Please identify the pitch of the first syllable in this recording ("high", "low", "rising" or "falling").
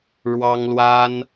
high